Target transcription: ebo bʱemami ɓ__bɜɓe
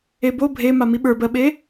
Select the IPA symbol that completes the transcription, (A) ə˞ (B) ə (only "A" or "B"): A